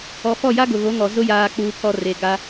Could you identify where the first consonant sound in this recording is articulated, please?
labial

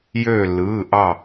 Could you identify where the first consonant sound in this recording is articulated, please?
palatal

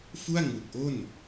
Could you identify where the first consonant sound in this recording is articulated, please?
labial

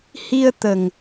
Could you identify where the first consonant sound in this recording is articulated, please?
glottal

